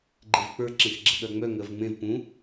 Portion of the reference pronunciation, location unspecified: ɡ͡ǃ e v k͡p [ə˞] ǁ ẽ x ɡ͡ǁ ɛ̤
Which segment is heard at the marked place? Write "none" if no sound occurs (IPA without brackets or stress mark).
ə˞